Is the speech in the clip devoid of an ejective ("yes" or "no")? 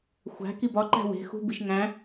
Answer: yes